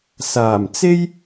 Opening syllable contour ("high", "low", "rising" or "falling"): low